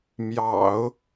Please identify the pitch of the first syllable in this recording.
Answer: low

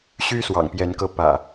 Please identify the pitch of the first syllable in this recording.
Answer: high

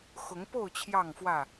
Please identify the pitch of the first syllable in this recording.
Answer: rising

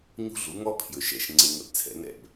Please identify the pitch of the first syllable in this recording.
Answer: high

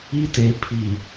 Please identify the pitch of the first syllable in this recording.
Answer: high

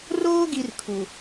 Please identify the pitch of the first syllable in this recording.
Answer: high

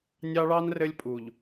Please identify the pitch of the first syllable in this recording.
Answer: high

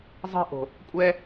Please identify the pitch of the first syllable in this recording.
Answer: high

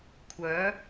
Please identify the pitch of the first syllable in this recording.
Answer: rising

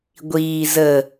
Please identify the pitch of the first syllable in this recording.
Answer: low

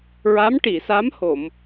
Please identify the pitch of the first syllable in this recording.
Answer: rising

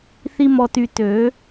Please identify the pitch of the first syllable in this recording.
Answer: high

